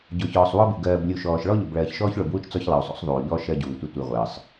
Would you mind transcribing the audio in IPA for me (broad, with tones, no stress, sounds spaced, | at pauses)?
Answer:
ɟ ʊ˨ ç ɔː˨ sˤ w ɔ˦ b u˨ ɡ ɜː˨ b lʲ u˨ ʃ ɔː˨ ʃ ɭ ɔ˦ ʎ ʊ˨ b ɭ ɜː˨ ç ʃ ɔː˦ ç ɭ ʊ˨ b w u˦ t͡ʃ t͡s ɔ˦ ç lˠ ʌ˨ u̯ sˤ ṵ˦ sˤ ðˤ uː˨ ʎ ɔ˦ ʃ ɜ˦ ɟ uː˨ tʷ ɪ˦ tʷ i˨ ʁʷ əː˨ sˤ